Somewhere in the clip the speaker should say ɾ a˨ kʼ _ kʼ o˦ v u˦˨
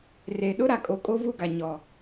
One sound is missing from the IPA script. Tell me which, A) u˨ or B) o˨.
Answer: B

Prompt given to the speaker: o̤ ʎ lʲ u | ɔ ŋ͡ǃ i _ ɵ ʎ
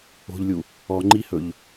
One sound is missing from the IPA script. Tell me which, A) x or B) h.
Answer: B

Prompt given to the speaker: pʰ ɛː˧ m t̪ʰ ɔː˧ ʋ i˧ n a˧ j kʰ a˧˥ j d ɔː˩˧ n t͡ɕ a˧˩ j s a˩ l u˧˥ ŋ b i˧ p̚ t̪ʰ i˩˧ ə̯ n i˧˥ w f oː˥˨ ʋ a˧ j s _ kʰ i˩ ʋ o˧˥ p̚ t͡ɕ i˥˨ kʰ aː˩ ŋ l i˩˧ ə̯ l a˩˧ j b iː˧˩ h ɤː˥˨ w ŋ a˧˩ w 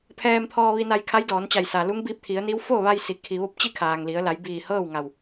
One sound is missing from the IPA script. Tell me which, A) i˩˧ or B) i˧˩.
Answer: A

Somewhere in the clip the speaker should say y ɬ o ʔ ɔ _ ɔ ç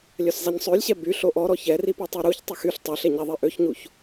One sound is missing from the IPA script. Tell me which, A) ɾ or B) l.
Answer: A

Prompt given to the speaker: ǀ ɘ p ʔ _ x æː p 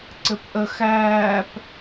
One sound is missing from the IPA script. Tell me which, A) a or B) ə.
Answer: B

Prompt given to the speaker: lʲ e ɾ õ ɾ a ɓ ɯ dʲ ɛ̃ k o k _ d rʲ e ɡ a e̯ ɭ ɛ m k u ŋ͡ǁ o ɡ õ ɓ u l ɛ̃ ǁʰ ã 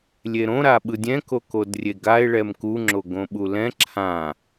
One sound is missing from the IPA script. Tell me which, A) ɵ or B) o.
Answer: B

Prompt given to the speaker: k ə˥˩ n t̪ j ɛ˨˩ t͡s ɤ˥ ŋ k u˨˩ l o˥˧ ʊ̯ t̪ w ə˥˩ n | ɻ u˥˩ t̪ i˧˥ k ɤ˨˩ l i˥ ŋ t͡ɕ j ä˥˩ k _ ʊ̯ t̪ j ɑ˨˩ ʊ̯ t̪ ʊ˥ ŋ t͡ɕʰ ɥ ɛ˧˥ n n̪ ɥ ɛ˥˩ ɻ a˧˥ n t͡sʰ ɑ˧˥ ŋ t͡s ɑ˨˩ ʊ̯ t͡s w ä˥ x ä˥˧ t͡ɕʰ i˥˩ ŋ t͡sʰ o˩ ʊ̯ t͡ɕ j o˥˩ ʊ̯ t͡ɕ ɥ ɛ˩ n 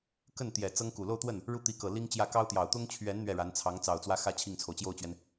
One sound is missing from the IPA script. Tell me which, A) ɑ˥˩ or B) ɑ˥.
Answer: B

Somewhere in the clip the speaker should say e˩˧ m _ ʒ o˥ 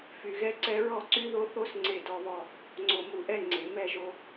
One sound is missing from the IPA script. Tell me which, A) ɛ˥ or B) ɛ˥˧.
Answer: B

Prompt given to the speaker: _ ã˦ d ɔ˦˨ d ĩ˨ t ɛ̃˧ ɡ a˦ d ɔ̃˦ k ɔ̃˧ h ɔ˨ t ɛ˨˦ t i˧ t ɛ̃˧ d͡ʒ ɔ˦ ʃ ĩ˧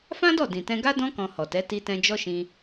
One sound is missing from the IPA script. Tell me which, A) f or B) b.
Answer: A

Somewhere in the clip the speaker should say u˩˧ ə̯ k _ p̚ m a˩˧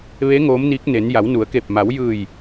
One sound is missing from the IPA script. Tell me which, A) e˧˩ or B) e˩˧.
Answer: A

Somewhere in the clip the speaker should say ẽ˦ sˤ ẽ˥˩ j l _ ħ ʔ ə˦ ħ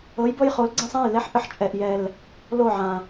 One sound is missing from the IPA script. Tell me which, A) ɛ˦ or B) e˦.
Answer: A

